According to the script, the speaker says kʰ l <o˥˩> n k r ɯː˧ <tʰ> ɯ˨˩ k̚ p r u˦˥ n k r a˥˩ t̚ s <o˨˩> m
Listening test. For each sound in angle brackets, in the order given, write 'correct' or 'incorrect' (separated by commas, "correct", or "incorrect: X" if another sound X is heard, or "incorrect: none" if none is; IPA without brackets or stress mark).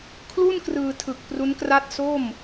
incorrect: u˥˩, correct, incorrect: o˥˩